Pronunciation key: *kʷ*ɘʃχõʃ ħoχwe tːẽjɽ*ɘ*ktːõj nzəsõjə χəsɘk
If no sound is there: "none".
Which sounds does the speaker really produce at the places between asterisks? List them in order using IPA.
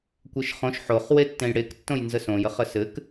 kʷ, e

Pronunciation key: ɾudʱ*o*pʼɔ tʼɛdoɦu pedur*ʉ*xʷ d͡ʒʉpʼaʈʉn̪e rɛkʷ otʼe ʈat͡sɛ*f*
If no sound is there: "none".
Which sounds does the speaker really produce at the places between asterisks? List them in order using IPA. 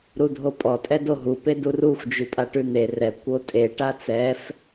o, u, f

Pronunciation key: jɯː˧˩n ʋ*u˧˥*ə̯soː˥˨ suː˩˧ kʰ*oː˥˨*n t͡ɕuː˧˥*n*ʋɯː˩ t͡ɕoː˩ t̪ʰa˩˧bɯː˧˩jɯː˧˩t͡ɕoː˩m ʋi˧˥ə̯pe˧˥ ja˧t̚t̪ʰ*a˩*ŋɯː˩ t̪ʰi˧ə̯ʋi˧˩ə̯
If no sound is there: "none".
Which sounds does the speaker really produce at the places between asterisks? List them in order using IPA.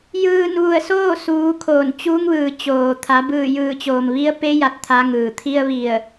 u˧˩, oː˧˩, ŋ, a˧˥

